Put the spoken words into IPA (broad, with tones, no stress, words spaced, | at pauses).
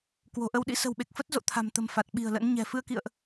kwo̤˨˩ʔə˧wɗḭ˧˥ sə̤˨˩wɓe˨˩k̚fə˦˥t̚ zo̰˧˨t̪ʰa̤˨˩mt̪ə̤˨˩m fa˨˩t̚ɓi̤˨˩ə̯lə̰˧˥nɲɛ̤˨˩ fɨ˧ə̯kḭ˧˨ə̯ʔ